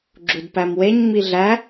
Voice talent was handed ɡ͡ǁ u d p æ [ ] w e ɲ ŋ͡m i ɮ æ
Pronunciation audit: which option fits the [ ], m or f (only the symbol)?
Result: m